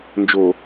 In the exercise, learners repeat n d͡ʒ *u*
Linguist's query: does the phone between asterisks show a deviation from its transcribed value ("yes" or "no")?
yes